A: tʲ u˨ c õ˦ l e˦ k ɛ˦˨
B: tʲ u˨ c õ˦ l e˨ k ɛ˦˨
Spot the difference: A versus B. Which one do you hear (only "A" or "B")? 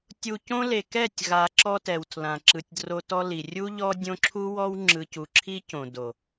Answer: B